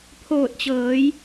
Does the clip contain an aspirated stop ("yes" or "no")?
yes